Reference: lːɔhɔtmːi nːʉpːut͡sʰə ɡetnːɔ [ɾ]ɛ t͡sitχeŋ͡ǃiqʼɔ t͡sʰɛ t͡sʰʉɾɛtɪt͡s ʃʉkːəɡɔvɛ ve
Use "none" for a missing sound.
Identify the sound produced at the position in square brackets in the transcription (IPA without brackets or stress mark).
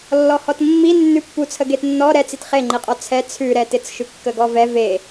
ɾ